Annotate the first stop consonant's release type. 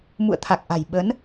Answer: aspirated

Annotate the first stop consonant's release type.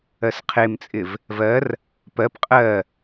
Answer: aspirated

